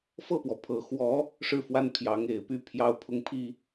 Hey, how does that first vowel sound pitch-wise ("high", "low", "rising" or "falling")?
falling